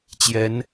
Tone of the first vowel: rising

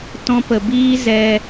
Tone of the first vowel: high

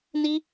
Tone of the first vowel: high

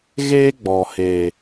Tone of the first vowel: high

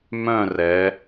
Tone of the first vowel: falling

